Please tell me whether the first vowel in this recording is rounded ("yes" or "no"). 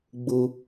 yes